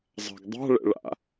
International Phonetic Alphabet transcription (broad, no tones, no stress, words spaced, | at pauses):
zˤa̤ɡdˤa̤ ɭɛ̰ɭa̰